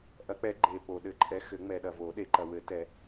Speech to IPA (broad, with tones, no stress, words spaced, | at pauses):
ʔɐ˨˥k͡pɛ˨˥ɡ͡ǃe˨ po˨ ɗɘ˨˥ǃʼɛ˨˥xɘ˨˩˦ŋ͡mɛ˨ ɗɐ˨vo˨˩˦ɗe˨˩˦ǃɐ˨ wɘ˨˩˦ tɛ˨˩˦